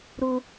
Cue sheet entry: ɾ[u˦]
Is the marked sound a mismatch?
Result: no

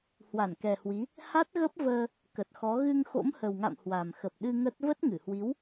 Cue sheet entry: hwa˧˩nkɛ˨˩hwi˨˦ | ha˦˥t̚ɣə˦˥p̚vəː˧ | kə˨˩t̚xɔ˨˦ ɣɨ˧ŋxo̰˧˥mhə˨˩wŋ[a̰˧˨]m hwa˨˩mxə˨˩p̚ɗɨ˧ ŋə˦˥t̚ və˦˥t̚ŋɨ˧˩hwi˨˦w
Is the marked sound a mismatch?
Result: no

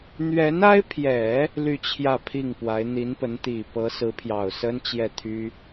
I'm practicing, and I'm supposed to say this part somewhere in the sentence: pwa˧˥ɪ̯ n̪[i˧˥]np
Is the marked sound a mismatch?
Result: no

